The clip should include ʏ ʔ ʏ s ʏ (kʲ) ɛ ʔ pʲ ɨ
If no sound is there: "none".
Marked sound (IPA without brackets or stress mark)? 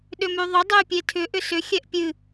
xʲ